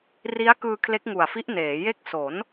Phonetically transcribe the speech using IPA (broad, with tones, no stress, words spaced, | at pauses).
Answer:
ri˦˥a̯ kɯː˧kʰle˦˥k̚ŋu˨˩a̯fi˦˥ʔ neː˩˦ je˦˥k̚so˩˦n